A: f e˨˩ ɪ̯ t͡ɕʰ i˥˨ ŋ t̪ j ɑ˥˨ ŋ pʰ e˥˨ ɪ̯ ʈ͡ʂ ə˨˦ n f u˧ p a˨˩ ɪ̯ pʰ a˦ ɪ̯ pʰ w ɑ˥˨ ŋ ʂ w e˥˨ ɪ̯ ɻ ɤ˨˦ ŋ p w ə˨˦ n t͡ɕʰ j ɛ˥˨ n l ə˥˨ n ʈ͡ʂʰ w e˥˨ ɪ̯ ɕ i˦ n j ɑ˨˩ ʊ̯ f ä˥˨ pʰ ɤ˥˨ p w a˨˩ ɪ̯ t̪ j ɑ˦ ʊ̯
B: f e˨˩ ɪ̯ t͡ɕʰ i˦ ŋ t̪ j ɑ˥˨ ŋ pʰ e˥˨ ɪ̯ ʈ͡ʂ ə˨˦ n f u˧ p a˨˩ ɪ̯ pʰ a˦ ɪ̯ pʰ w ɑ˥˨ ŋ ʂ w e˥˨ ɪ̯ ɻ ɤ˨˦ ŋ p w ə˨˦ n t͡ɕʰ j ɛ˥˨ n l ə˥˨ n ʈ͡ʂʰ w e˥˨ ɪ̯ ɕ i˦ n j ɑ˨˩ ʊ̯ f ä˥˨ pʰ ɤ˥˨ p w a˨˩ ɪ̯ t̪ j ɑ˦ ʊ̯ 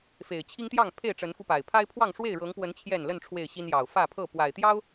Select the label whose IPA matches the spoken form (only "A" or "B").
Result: B